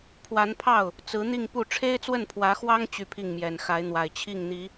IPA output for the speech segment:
pʰwa˧˥npʰɑ˥˩ʊ̯ | t͡sɹ̩˧˥n̪i˥˧ŋpu˥˩ ʈ͡ʂʰe˥ɪ̯t͡swə˥˩npʰwä˧˥xwɑ˥ŋ t͡ɕy˥˧pʰi˥˩ŋmjɛ˨˩n xa˧˥ɪ̯n̪wa˨˩ɪ̯t͡ɕʰi˥˩ŋn̪i˧˥

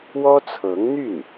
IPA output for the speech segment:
wɔ˥t͡sʰɤ˧˥ŋn̪y˥˩n

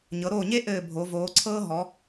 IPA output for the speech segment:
ɲɤ˩˧ɾoː˧˩ɲe˦ ʔɘː˧˩bʱo˩˧voː˩˧ǀʰɤː˦ ɦɔ˩˧

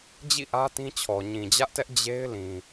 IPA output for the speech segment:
d͡ʑḭ˦˨ʔä˦ tĩ˦t͡ɕʰɔ˨ ɲĩ˨d͡ʑä˦ʔtɛ˦ʔ d͡ʑe˦ɪ̯lĩ˨

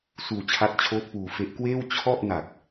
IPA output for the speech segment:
suː˧t͡ɕʰa˦˥t̚ t͡ɕʰoː˦˥t̚ puː˧fe˦˥ʔkweː˥˩w t͡ɕʰɔ˥˩ʔ na˨˩k̚

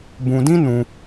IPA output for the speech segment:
bũ˧dĩ˦ nũ˦

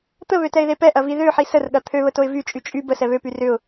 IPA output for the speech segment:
t̪əβøtɛɪ̯ðe pɛʔɐvi ðøħi sərɠɐ t̪ʰøβətoɪ̯ vyt͡ʃʼy t͡ʃʼy bəsɛ βøpy rʏʊ̯

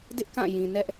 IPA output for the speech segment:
dɪ˦ʔkã˦˨jĩ˨nɛ˦ʔ

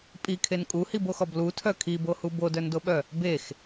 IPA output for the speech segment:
pʼikʰen kʼuhiboxɔb lutʰœ kʰibohu bodœndoɓœ | bex

